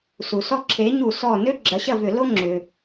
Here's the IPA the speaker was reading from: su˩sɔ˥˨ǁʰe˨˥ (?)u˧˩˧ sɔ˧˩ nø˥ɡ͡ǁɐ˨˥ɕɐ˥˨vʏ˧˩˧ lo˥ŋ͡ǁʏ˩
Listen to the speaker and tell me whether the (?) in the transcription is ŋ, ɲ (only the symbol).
ɲ